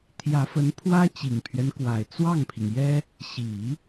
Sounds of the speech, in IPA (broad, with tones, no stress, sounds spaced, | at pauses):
t̪ʰ j ä˧˥ f ə˧˥ n pʰ w ä˥ t͡ɕ i˨˩ ŋ pʰ ɥ ɛ˦ n k w a˨˩ ɪ̯ t͡s w ɑ˥˩ ŋ pʰ i˩ ŋ j ɛ˥ | ɕ i˨˩˦